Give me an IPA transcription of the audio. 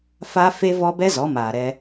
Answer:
f a˦ f e˦ v ɔ˦ b ɛ˦ z ɔ˨˦ m aː˨ ɾ ɛ˧

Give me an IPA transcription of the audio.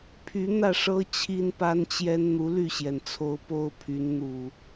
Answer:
pʰ y˨˦ n̪ ä˥˨ ʂ ɤ˦ t͡ɕʰ i˦ n p a˦ n t͡ɕ j ɛ˦ n n̪ u˨˦ l y˥˨ ɕ j ɛ˩ n t͡sʰ o˨˦ ʊ̯ p o˦ ʊ̯ pʰ y˨˦ n n̪ u˨˩

